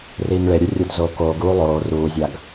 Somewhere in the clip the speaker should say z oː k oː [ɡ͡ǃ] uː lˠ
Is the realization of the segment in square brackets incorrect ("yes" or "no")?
yes